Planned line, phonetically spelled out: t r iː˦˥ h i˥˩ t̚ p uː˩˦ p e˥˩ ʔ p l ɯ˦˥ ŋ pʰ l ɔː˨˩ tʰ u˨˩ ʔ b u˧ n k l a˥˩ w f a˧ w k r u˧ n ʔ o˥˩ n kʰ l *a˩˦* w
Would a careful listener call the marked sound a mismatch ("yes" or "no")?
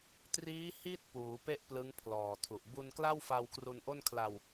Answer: yes